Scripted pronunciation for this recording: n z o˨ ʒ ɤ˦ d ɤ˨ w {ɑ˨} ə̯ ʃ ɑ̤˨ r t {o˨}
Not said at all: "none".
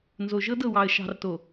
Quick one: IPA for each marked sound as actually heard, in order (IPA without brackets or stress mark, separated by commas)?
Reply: ɑ˨, o˨